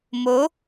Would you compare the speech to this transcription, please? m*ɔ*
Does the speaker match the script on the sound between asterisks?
no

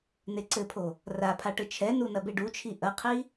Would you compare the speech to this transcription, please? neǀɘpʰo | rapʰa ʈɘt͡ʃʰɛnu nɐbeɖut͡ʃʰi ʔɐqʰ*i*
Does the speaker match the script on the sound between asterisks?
yes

